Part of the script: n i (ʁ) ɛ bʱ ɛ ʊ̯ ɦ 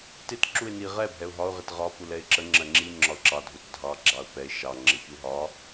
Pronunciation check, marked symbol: correct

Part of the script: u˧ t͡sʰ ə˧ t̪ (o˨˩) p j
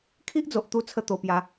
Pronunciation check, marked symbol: incorrect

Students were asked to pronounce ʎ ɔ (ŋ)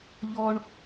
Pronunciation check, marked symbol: incorrect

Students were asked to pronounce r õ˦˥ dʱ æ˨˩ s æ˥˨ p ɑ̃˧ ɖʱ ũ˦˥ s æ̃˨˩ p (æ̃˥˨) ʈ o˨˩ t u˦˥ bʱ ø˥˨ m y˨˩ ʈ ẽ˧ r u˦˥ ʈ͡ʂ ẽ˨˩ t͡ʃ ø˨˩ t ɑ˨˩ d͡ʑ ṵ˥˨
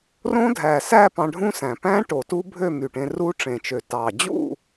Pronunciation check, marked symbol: incorrect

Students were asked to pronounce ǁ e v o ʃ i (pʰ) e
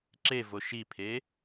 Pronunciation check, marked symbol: correct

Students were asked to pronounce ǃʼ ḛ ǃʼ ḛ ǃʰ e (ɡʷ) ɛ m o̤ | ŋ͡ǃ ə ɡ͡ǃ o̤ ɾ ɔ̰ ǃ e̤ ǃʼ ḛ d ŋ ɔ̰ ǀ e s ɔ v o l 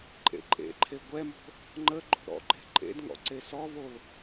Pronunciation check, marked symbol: correct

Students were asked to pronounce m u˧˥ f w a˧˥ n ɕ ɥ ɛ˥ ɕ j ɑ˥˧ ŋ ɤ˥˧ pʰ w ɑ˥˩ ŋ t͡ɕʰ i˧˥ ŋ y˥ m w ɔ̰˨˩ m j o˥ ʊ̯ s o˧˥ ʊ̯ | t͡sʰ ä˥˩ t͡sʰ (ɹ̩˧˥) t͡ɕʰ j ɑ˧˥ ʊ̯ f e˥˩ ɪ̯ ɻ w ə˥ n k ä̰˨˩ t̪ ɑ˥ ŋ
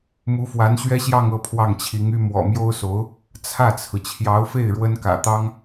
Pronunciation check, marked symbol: incorrect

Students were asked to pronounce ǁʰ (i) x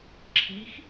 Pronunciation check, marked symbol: correct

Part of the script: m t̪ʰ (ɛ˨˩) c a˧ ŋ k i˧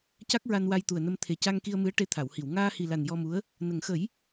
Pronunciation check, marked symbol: incorrect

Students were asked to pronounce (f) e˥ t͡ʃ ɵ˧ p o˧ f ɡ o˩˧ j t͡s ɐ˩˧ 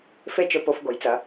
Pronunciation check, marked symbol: correct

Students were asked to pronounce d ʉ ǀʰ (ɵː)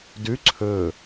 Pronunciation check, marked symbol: correct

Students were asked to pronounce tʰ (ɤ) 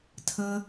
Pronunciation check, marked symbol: correct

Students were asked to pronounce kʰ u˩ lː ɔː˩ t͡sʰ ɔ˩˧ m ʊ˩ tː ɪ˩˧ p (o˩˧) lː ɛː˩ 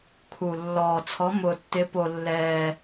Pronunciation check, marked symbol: incorrect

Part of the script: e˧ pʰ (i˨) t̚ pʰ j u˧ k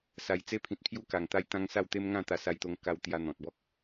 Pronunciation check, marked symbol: incorrect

